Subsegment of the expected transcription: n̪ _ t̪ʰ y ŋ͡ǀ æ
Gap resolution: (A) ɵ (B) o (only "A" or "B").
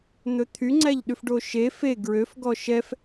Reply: A